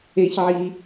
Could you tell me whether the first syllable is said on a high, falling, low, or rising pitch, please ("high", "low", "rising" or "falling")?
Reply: high